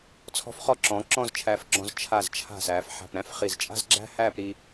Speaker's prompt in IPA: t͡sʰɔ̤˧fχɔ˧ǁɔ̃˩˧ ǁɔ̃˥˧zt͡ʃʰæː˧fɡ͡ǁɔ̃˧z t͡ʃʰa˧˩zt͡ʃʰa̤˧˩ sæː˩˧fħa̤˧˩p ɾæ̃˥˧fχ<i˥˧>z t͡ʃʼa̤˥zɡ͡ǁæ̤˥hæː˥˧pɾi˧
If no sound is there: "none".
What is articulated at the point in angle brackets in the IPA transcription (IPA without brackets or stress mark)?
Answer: i˧˩